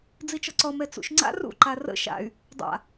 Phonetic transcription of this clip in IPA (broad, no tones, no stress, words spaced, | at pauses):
d͡zit͡ʃɔǀɔ mɛt͡sṵʃŋ͡ǀa̰ rṵ ǃarə̰ ʃa̰y̯ | dˤa̰